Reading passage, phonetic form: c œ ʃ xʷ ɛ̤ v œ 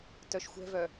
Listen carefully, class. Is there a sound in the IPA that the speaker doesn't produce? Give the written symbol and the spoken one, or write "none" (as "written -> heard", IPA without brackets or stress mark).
c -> t